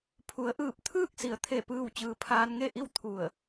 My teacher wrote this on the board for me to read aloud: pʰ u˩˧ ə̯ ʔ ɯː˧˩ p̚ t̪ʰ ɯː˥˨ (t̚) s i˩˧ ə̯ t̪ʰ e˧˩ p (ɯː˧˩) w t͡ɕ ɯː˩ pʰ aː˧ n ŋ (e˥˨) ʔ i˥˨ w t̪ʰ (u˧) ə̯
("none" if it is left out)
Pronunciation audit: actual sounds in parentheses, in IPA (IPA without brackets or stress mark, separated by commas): k̚, ɯː˧˩, e˥˨, u˧˩